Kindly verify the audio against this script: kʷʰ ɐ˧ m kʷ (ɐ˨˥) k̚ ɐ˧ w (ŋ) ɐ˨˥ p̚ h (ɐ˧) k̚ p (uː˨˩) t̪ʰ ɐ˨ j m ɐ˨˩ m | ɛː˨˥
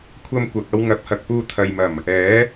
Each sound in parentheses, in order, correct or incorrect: incorrect: ɐ˨, correct, incorrect: ɐ˨, incorrect: uː˧

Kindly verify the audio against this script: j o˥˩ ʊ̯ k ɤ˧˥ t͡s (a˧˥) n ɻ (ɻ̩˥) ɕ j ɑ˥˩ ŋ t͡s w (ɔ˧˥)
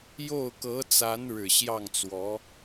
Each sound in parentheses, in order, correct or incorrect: correct, incorrect: ɻ̩˨˩, correct

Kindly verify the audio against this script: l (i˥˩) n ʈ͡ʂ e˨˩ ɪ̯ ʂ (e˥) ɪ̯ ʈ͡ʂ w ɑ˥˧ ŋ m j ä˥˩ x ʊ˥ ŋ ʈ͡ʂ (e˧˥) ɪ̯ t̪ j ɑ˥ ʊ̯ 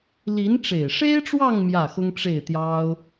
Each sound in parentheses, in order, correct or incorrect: incorrect: i˧˥, correct, incorrect: e˥˩

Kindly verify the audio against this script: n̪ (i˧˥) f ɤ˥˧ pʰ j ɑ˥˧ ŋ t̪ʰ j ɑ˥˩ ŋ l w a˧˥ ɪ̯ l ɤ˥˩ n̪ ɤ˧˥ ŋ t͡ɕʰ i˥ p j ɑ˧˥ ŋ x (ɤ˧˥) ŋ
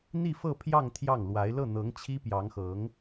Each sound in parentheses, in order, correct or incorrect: incorrect: i˥˧, correct

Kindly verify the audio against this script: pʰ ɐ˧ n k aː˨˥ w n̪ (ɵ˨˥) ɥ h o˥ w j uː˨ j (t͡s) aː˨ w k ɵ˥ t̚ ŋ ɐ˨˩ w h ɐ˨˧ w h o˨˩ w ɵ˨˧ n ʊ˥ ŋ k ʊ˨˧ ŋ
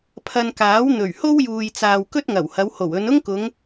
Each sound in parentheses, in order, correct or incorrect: incorrect: ɵ˨˩, correct

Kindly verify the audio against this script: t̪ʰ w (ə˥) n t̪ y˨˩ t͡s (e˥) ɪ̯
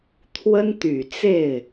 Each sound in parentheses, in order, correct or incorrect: correct, incorrect: e˥˩

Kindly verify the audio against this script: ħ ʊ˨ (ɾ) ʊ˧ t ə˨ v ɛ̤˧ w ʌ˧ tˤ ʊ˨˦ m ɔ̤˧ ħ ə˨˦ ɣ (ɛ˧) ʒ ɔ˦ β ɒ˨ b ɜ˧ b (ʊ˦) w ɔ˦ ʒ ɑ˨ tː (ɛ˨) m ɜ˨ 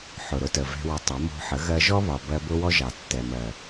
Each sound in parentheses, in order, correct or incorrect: correct, incorrect: ɜ˧, correct, correct

